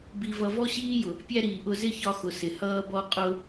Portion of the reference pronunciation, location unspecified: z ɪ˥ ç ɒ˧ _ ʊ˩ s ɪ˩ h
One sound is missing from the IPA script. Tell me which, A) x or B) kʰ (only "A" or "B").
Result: A